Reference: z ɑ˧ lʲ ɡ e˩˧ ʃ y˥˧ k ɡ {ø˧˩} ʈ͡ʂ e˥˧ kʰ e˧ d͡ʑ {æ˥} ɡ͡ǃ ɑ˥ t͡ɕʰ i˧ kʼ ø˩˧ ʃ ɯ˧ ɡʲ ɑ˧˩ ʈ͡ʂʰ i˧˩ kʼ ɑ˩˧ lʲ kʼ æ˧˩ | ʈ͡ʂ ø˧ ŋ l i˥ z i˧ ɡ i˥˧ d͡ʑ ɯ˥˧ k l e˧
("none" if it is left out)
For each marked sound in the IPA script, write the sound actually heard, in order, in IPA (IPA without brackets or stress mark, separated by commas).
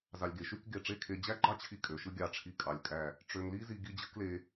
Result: e˧˩, æ˥